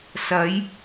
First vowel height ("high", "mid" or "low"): low